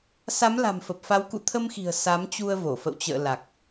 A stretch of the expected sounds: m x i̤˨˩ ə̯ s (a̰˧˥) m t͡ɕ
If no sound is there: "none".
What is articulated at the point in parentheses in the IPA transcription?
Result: a˨˦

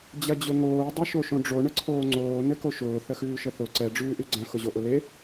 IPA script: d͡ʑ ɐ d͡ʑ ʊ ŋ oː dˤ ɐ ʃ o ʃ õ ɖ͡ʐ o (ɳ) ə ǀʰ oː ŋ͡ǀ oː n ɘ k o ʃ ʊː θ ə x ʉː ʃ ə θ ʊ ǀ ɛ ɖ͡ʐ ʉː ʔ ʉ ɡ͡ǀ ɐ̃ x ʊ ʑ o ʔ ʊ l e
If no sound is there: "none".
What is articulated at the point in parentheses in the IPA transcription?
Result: ɳ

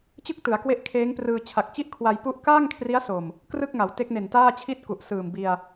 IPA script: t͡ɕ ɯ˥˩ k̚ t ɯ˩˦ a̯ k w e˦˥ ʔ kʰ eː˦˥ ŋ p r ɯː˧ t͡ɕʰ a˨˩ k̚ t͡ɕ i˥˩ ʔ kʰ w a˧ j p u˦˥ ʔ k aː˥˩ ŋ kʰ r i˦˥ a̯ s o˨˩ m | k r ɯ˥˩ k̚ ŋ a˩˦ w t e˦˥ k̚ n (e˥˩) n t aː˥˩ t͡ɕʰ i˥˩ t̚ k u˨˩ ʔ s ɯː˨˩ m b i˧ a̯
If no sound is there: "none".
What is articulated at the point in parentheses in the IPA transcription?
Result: e˨˩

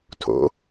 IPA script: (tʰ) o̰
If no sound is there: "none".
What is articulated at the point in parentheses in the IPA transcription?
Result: tʰ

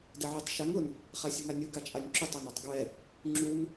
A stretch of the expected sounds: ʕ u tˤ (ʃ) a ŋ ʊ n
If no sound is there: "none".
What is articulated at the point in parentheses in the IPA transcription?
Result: ʃ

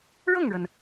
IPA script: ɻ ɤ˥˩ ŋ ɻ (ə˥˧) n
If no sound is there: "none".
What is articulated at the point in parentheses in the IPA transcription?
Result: ə˩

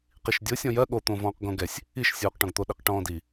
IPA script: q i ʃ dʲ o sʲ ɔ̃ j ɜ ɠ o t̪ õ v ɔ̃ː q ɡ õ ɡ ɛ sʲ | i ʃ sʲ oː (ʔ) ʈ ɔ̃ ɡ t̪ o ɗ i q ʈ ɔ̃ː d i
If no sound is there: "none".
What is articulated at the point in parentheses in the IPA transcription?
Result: q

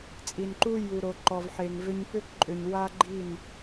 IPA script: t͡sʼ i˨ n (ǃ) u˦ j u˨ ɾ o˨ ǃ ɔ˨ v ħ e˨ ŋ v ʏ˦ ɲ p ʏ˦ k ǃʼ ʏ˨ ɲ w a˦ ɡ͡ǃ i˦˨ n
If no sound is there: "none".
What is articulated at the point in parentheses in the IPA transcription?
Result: ǃ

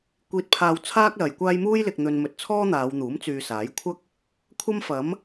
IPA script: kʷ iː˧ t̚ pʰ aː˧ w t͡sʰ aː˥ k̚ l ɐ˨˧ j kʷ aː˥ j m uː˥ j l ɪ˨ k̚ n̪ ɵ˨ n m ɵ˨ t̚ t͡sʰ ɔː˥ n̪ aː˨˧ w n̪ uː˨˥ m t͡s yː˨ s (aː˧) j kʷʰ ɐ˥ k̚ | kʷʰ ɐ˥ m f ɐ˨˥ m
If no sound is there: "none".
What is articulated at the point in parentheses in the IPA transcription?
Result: aː˨˥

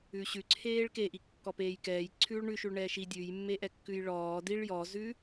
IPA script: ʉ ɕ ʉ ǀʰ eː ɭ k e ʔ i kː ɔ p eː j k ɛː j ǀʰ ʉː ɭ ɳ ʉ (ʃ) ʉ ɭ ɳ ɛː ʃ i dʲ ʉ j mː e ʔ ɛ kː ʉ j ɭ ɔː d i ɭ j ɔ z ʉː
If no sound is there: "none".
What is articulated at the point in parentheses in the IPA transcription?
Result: ʃ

